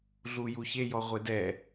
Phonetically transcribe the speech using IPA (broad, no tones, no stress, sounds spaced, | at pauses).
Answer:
ɮ u j u ç e j ɔ ʁʷ e d ɛ